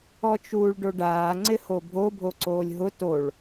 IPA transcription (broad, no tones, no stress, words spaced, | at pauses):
ɔt͡ʃuːɭɖoɖaː ŋ͡ǀɪhobʱo bʱoǀoːlʲɦʊ toɭ